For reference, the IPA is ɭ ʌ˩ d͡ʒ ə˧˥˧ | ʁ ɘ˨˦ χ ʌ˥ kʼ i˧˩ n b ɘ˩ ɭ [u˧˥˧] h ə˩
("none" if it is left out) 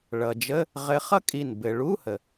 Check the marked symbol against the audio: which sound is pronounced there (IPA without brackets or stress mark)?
u˧˥˧